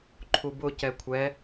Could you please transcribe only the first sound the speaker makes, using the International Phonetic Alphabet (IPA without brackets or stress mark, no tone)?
ǃʰ